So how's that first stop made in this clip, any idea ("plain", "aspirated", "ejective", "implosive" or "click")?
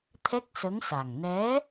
aspirated